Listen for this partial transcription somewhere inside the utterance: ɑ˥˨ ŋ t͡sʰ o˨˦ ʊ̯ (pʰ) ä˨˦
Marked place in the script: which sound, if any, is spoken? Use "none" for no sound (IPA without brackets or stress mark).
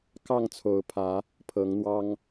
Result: pʰ